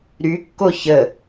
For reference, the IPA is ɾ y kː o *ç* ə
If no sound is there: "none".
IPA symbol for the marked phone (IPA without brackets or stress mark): ç